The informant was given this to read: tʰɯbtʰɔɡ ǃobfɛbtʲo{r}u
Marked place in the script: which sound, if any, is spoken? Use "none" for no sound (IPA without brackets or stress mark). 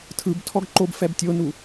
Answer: n